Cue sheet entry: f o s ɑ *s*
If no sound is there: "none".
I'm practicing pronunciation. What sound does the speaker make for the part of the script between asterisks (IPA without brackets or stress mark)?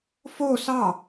none